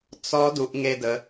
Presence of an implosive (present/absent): absent